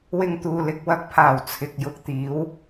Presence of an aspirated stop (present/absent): present